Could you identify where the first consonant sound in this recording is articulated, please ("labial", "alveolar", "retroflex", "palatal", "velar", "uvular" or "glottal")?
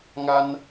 velar